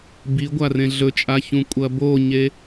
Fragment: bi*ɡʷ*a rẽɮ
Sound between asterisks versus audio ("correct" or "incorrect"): correct